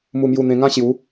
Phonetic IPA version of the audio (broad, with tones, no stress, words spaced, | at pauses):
mu˧mju˧ n̪ẽ˧ŋã˦ɕju˨˦